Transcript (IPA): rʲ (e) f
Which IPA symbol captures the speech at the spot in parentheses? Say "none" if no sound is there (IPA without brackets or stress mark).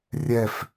ɛ